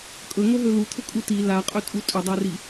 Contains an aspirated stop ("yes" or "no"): yes